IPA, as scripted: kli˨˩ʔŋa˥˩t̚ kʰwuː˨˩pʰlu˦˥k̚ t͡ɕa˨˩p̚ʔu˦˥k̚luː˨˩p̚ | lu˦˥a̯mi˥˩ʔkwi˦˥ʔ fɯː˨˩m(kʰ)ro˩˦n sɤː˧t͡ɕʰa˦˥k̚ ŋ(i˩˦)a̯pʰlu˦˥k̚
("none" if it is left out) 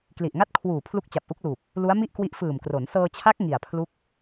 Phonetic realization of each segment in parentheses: k, i˨˩

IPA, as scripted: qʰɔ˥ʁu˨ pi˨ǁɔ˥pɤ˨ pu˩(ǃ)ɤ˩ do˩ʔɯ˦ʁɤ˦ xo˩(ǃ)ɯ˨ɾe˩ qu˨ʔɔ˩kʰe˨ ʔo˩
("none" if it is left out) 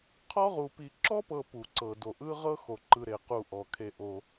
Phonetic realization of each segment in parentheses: ǀ, ǃ

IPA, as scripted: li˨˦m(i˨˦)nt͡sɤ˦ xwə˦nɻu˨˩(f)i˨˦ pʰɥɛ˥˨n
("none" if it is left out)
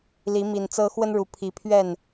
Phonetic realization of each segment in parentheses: i˨˩, pʰ

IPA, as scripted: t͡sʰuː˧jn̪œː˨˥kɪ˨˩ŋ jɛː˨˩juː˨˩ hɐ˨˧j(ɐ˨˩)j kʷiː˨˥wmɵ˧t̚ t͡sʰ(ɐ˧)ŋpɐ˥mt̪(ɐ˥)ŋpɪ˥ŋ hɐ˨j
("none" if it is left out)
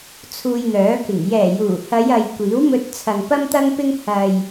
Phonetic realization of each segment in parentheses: ɐ˨, ɐ˨, ɐ˥

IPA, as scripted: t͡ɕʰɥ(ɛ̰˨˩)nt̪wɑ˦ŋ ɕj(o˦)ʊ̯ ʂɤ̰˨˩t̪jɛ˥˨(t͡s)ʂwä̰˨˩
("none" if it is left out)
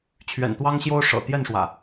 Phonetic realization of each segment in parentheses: ɛ̰˨˩, o˦, n

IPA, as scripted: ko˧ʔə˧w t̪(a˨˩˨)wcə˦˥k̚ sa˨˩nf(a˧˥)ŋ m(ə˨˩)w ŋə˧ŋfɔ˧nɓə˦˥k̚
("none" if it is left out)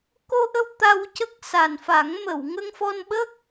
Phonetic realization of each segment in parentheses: a˧, a˨˩˦, ə˨˩˨

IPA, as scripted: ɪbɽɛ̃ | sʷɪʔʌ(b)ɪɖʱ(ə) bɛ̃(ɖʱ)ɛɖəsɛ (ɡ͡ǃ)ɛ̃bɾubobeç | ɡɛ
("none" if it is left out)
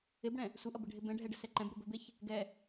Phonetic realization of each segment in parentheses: b, ɪ, ɖʱ, ǃ

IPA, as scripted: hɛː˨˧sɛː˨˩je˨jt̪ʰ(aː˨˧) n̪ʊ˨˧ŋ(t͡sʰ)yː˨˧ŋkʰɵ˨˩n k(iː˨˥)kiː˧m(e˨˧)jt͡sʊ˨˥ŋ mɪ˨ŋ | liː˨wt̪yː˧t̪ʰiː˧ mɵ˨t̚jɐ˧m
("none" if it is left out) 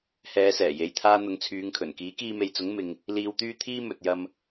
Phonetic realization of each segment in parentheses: aː˧, t͡sʰ, iː˨˥, e˨

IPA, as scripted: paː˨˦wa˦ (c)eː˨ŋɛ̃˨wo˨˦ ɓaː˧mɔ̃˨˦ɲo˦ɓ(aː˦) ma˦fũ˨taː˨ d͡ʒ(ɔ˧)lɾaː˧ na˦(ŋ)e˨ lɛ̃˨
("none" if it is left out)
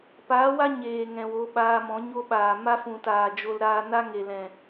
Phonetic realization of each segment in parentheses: ɲ, aː˨, o˧, ŋ

